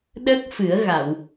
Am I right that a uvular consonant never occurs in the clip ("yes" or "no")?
yes